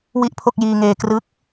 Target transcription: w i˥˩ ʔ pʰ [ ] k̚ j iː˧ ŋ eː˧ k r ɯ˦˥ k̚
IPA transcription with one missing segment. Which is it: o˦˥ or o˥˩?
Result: o˥˩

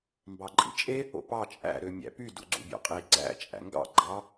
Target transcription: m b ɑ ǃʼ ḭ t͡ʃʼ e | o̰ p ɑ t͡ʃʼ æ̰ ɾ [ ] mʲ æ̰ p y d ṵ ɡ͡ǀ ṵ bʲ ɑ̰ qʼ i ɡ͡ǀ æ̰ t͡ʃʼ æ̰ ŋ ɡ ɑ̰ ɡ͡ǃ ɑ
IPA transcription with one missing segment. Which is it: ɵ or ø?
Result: ø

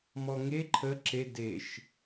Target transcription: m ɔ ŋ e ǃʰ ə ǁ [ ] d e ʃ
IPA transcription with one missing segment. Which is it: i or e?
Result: e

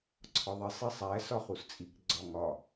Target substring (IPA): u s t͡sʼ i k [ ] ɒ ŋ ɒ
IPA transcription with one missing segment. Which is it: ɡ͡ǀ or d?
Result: ɡ͡ǀ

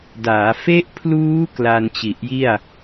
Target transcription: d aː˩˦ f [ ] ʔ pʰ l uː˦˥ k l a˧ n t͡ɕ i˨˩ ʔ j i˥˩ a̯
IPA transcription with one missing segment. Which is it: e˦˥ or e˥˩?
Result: e˦˥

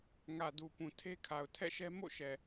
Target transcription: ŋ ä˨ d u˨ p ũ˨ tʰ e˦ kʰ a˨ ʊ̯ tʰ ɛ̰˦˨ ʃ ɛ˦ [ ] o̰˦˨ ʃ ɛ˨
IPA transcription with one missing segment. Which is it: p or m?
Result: m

